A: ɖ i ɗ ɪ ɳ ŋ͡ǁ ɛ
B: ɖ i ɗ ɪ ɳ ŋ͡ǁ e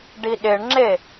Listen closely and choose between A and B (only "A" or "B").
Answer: B